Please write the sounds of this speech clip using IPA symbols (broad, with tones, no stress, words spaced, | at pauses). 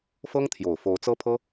fɤ˥ŋ t̪ʰjo˨˩ʊ̯fo˧˥ʊ̯t͡sɤ˥pʰɤ˥